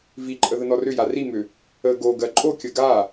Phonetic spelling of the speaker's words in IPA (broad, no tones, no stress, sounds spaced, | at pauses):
v i ǃʼ ə ð ə n ɔ r ʏ j a r i m ʏ | ə ɡ o ɡ ɜ ǃʼ o kʲ ə ɡ a